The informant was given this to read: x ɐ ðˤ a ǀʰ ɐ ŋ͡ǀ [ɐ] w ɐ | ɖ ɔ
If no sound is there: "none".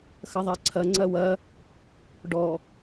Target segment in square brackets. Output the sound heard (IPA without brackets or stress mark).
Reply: ɐ